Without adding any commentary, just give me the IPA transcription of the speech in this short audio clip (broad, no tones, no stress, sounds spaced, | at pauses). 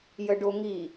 j ə ɖ o ŋ i